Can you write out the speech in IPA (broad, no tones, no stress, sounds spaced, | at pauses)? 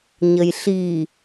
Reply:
ɲ ə j ɬ i